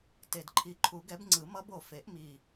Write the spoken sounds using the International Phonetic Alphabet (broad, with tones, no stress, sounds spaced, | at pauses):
t e˨˩ d ǃʰ i˨˩˦ ǃʰ u˨˩˦ ɡ ɛ˨˥ b ŋ͡ǀ ɯ˨˩˦ m ʌ˦˥ b o˨˩ f e˨˩˦ ʔ m i˨˩